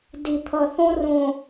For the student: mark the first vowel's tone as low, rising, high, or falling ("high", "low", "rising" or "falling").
low